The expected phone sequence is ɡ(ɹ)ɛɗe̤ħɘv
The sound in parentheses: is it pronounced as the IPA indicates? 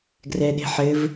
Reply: no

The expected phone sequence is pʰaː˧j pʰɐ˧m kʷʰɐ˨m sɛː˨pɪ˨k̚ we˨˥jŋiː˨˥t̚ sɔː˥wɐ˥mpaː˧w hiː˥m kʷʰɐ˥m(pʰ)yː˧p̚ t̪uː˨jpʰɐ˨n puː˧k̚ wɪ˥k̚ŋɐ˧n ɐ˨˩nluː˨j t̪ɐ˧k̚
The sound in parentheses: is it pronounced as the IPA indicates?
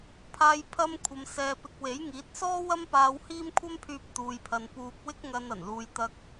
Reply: yes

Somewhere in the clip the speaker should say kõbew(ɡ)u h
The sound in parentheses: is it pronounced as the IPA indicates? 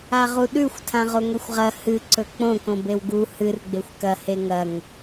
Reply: yes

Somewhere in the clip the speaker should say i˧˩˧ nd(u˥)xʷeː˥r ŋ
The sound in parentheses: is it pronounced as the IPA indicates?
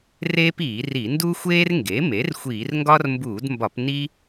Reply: yes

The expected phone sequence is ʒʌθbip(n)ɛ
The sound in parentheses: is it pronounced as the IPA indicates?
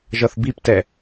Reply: no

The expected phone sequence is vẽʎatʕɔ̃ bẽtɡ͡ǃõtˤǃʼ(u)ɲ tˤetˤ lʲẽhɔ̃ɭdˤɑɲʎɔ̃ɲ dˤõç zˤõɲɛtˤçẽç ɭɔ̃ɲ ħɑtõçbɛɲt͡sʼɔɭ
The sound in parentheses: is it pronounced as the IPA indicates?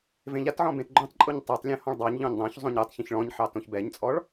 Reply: yes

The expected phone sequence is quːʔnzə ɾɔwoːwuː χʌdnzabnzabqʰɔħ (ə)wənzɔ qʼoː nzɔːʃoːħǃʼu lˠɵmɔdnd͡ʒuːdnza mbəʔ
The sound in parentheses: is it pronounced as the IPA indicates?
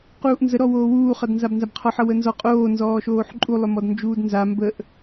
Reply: no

